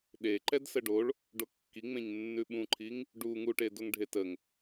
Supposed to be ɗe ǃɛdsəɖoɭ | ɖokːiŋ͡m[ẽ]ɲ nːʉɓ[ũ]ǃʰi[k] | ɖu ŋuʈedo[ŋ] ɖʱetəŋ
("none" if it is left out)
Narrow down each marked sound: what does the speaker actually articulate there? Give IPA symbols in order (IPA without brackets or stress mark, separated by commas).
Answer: ẽ, ũ, ŋ, ŋ